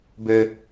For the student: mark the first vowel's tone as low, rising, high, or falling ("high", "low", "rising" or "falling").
high